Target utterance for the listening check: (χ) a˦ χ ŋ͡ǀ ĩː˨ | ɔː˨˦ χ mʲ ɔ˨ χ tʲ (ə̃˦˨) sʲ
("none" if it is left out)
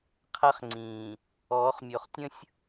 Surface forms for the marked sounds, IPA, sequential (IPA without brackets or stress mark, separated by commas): qʰ, ə̃˦